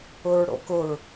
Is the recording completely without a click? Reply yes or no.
yes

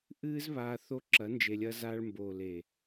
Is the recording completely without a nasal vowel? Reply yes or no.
yes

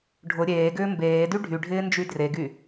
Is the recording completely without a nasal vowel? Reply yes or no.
yes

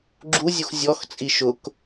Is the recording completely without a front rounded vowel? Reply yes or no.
yes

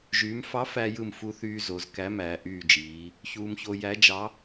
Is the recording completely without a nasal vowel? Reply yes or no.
yes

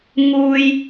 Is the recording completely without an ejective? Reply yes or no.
yes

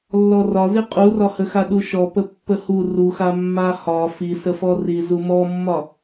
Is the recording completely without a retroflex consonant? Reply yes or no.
yes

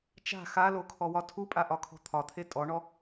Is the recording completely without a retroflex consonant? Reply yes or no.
no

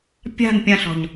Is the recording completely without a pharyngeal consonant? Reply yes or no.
yes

